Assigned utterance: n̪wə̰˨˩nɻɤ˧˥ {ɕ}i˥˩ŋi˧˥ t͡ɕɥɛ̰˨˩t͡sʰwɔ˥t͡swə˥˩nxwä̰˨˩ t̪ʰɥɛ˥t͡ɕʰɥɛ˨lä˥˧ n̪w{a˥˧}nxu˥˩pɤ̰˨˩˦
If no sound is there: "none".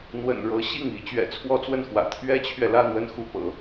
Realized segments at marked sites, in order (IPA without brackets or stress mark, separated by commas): ɕ, ə˥˧